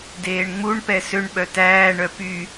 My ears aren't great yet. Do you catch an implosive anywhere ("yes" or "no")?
yes